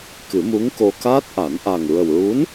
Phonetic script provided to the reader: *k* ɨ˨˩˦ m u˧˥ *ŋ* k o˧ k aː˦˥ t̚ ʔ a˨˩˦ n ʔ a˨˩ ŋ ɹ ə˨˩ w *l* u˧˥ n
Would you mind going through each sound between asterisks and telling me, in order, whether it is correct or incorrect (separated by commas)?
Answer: correct, correct, incorrect